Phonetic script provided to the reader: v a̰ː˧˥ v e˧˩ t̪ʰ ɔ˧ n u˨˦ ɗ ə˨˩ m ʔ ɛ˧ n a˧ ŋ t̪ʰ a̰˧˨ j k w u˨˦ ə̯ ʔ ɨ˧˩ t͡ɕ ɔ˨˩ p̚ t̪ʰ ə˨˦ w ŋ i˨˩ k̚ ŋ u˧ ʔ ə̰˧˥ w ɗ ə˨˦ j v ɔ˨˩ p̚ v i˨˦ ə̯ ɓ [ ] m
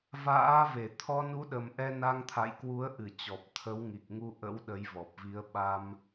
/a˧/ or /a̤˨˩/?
a˧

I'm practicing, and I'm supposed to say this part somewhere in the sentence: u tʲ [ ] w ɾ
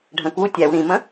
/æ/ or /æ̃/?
æ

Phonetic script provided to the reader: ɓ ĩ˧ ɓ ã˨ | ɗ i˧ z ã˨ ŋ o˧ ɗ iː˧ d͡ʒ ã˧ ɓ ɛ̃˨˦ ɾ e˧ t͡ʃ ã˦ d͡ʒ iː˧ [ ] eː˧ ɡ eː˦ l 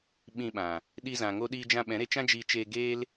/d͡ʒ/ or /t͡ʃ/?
t͡ʃ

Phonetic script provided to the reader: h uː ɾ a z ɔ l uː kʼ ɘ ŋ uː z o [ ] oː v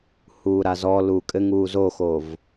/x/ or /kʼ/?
x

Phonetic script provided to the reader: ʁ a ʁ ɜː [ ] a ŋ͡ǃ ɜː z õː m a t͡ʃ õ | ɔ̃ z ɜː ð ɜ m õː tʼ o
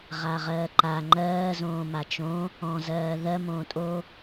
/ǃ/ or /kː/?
ǃ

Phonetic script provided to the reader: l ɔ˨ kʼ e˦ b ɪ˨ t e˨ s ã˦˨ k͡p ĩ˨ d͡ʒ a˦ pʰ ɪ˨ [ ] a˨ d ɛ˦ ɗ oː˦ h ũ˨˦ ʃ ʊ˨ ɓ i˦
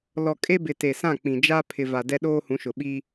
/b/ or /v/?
v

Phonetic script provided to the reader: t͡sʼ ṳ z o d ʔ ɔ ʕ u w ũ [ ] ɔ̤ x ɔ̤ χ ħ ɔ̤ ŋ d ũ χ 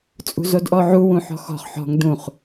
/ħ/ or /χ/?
ħ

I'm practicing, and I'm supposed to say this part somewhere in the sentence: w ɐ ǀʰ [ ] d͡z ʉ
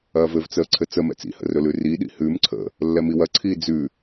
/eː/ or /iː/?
iː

